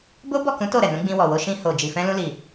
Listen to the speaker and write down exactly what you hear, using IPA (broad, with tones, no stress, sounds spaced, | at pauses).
b o˦ b ɔ˦˨ k ũ˨˦ t o˦˨ ɾ ɛ˨ n ũ˨˦ ɡ͡b ĩ˧ w ɔ˨ w o˧ ʃ ĩ˧ h o˨ d͡ʒ i˨ f ɛ̃˧ l ũ˧ l i˨